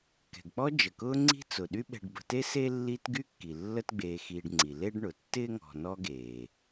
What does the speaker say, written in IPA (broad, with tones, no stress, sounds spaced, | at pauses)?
k ɛ̤˩ ɡ k͡p ɔ˦ d͡ʒ ə˩ k ʊː˦ ŋ͡ǀ i̤˦ t͡s ʊ˩ ɗ y˦ ɓ ɛ̤˨ ɖ b ə̤˨ t e˦ s e˥ lː i˦ t ɡ y˥ kː i˩ lː ə˥ t ɡ͡b eː˨ x iː˨ ɖ ŋ͡ǀ i˩ l e˥ ɖ ɳ ʊ˩ tː ɪː˥ ŋ ɔ̤˨ n ɔ˦ ɡ eː˩